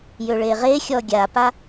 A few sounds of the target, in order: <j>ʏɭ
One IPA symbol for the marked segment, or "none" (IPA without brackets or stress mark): j